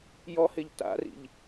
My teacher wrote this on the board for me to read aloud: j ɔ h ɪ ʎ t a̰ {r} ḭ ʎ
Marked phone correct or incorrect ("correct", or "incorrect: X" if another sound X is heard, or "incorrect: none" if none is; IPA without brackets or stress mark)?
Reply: correct